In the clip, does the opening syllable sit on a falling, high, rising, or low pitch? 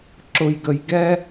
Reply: high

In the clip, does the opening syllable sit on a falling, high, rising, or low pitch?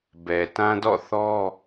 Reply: low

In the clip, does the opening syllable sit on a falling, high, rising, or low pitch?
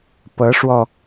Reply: rising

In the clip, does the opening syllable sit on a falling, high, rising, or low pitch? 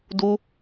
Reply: high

